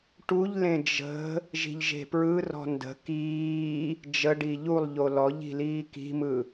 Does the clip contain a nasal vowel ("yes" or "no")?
yes